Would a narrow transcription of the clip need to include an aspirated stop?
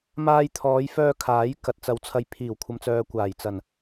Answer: yes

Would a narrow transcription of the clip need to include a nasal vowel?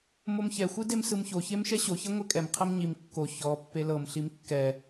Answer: no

